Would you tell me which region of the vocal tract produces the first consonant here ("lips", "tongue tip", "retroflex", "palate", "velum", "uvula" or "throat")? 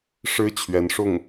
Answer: retroflex